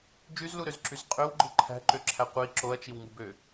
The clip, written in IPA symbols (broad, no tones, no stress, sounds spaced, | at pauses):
d͡ʒ y z l u ɾ ø z ǁ y z qʼ ø w ɡ͡ǃ ɯ ǃʰ æ̤ ǃ ø ǁʰ æ qʷ i ǁ o ɐ̯ t͡ʃ i w ŋ u b ø